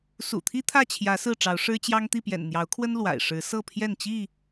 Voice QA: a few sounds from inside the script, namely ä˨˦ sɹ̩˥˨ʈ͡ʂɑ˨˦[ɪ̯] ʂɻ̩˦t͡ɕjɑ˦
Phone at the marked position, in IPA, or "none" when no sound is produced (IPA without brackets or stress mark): ʊ̯